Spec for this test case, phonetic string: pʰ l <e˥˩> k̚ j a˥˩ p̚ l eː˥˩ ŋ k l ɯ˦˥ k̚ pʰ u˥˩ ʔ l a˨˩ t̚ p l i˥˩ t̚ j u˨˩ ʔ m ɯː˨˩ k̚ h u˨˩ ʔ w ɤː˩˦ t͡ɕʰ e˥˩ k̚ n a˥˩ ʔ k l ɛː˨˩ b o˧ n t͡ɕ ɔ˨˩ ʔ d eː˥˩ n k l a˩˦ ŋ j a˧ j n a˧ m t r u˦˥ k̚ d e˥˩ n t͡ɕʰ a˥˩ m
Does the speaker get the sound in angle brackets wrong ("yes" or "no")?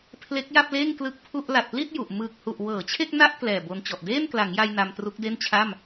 yes